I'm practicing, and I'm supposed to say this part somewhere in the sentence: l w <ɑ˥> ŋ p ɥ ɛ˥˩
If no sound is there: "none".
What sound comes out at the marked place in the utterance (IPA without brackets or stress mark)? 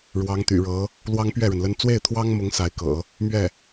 ɑ˥